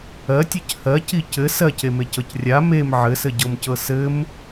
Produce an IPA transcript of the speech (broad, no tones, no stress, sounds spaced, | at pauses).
ɜ tʲ ɜ c h ɜ c i c ɘ s ɜ c e m e c ɤ c rʲ a m e m ʕ ɘ s ɘ ɟ ɤ m c ɤ s ɘ m